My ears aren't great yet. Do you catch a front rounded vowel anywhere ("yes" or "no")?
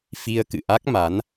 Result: no